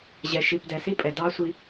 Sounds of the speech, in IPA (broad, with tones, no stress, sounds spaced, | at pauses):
ʑ ɛ˨ ʃ i˨ p d ɛ˨ s i˦ pʼ ɛ˨ d ɑ˦ sʷ i˦